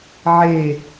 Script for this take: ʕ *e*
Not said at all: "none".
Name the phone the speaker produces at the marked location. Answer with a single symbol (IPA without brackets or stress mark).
e